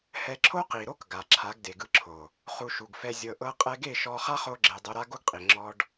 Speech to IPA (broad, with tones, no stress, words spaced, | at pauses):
hɛ˧ǁʰo˦ qi˨ɾo˦k ɡa˨ǁʰa˨˦ɡ de˨ɡɯ˧ǁʰo˨ | χu˧ʃu˨ɡfɛ˧ zʲɤ˧ ʔɤ˦qʼɛ˦ ɡe˦˨ʃɔ˧ χa˦χo˧ɡ͡ǁe˨ dˤo˧ɾa˦ɡo˦ɡqʼi˨ ŋ͡ǁɔ˦ɖ